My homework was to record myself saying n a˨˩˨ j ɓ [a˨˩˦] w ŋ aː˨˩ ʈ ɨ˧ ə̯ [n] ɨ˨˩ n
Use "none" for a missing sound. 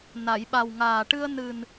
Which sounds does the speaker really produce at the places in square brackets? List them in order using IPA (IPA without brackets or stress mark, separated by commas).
a˨˩, n